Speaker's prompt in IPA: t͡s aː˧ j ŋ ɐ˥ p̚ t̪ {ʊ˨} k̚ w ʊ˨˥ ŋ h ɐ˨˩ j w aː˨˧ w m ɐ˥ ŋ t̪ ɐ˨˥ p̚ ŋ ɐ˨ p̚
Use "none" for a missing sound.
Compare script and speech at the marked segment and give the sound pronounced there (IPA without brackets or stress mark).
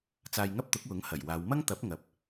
ʊ˨˥